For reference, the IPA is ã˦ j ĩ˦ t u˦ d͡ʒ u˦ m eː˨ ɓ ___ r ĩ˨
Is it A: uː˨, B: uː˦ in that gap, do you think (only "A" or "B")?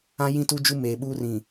B